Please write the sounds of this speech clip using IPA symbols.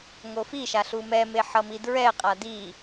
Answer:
ŋofiʃa ɬumɛme ħʌmidɹɛqʼa di

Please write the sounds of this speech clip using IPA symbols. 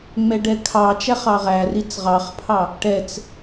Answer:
ŋ͡mɛɖɛkʰɑt͡ʃæχ ɑʁærit͡s ʁɑχpʰɑ | ʈɛt͡s

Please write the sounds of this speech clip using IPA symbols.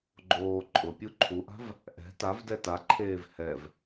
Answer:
ɡ͡ǃoː ǃʼʊpʲu ǃʰuʔa̤v | ʔɛ̤ tavdɛ taǃʰeːv hɛv

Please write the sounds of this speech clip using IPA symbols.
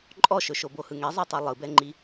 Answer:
ǃʼɔʃɵʃobo hɯŋɛzˤɜtˤɨ lˠɯbɛŋ͡ǃi

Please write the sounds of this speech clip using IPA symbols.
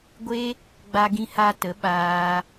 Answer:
ɡʷe˦ | ɡ͡ba˧ɡĩ˧ha˧tə˨˦ ɓaː˧

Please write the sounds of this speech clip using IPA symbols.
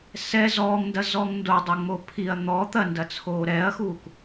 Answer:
sɛ zɔːŋndɐ zɔŋndodˤo ŋ͡mopʰiɐ̯ n̪ɔ t̪ɐndɐt͡sʰoː ɾɛɐ̯xuːk

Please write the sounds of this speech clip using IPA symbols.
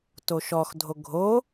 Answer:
toʃɔxdʱo ɡʱo

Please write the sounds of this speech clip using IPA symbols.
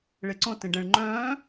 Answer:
ɭeǀõ tẽɖɛ̃ɭ ŋ͡ǃœ̃ː

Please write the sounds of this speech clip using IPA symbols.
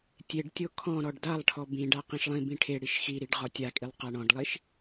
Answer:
tʲeɖtʲo kʰɔ̃ ɾɔɖdalˠʈʰɔ bĩɖa qĩʃlˠĩbĩ ʈʰeɽiʃ xiɾiɖ ʁɔtʲakʼilˠ qaɳɔ̃ɖlˠiʃ

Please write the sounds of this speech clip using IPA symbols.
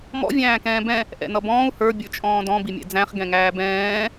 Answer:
mɔ̰ vʲæ̃ːkɛ̃ːbɛ̃ | ʔɛ̰nʌbɔ̃ːu̯ hə˞ bʲə˞t͡ʃʼɔ̃ːdɔ̃ bimʲɛ̰d͡zæ̃χ ɡɛ̃ŋæːbɛ̃ː

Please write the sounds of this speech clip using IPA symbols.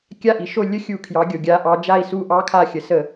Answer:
kʲa˦˨ʔi˩ʃo˦˨ lʲə˦˥xʲu˧˩˧ kʰjɑ˩˧ɡʲo˩ɡʲa˩˧ʔɑ˩˧ d͡ʒa˦˨i̯su˦˨ ʔɑ˦˥kʰa˦˨xʲə˩˧sə˧˩˧

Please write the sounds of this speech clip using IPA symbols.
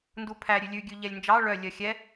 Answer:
ndupʰæ ɾʲʉlʲʉ ɡʲʉʎɛlʲnd͡ʒɑ ɭœ lʲœxʲɛ

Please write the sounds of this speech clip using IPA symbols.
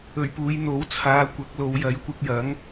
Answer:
ɵ˨˩ɥpuː˨˧j n̪o˨˥wt͡sʰaː˨˧ kʷɐ˨˥k̚lo˨˧wjɐ˨˥j kʷɪ˧k̚jɐ˨˥ŋ

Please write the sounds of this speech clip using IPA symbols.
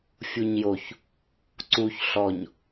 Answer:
fʲuɲjoç | ǀuç ɬɔɲ

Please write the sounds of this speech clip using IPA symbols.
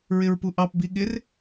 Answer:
ɹɪɹpuʔɑp biɠɪr

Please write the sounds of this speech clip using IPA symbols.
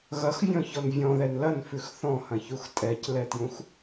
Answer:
ɣɐxvʲɔ̃çɔn vʲɔ̃ðɛn lɐnfʉx θɔ̃hɐ̃çux tʼɛclɛtjũx

